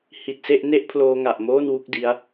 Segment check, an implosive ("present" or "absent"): absent